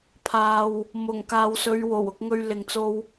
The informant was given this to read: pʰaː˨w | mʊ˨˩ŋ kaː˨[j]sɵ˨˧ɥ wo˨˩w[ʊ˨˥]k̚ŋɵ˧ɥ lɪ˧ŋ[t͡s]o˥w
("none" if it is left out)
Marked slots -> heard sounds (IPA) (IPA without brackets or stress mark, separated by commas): w, ʊ˧, t͡s